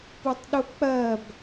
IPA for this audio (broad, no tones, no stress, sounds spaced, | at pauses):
p u tˤ ɗ u k͡p ɜ b